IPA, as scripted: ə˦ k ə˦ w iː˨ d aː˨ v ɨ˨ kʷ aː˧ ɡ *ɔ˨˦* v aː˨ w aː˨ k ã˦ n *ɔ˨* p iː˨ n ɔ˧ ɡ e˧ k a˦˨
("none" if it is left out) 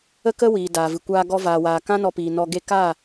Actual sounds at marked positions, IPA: ɔ˧, ɔ˧

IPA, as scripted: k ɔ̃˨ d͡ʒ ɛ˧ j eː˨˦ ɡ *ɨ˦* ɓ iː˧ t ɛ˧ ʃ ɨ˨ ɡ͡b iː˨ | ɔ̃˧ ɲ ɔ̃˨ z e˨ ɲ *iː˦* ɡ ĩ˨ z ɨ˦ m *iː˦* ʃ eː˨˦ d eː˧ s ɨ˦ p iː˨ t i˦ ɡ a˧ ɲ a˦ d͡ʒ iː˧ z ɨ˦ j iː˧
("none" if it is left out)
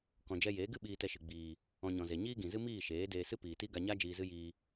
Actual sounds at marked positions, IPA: ɨ˦, iː˦, iː˦˨

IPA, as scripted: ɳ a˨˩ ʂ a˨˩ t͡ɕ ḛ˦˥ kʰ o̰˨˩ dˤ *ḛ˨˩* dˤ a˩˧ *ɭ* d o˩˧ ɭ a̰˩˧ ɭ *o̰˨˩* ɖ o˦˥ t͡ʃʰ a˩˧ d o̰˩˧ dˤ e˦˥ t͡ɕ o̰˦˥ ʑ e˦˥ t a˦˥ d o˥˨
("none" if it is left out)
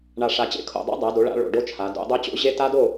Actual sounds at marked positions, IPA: ḛ˦˥, none, o̰˨˩

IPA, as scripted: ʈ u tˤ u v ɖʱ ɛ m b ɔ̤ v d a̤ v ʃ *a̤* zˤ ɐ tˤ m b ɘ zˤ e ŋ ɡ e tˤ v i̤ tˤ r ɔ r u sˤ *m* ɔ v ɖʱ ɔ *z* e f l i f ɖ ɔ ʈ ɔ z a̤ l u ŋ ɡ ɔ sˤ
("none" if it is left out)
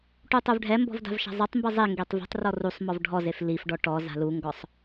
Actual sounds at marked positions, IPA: a̤, m, z

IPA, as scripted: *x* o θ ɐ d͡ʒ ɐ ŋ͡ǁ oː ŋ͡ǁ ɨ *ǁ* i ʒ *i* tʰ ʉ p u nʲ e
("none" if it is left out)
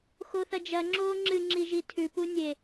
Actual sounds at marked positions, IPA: x, ŋ͡ǁ, i

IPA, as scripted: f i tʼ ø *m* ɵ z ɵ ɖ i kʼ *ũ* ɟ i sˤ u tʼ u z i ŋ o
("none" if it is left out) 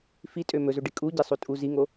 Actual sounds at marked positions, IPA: m, u

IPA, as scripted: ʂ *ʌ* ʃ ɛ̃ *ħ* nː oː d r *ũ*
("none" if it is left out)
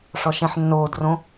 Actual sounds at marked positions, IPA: ɔ, ħ, õ

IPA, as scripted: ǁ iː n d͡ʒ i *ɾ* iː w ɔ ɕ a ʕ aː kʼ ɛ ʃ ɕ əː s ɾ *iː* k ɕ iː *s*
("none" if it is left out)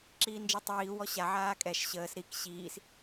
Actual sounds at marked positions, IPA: tˤ, i, s

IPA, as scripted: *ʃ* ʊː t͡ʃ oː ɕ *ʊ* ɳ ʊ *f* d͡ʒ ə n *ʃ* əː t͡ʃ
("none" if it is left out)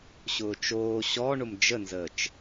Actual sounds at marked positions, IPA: ɕ, ɔ, m, z

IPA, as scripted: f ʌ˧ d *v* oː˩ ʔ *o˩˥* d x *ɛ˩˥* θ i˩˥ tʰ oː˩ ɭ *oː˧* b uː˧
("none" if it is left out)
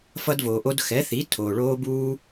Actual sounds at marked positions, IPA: v, o˧, ɛ˩˥, oː˧

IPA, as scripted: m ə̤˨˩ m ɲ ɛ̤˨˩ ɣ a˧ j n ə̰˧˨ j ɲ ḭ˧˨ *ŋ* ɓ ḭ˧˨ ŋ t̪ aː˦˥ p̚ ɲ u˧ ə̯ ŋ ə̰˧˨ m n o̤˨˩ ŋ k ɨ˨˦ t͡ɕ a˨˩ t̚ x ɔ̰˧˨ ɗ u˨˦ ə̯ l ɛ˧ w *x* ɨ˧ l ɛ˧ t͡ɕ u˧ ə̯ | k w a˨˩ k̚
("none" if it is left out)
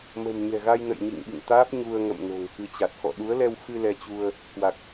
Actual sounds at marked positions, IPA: ŋ, x

